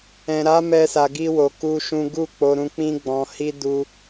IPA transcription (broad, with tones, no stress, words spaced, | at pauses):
ɛ̃˨ɾa˨˦ mɛ˦sa˧ɡi˦ wo˧ku˦ʃũ˦ ɡu˦˨k͡po˧ɾũ˧ k͡pĩ˦ɡ͡bɔ̃˧hi˦ du˦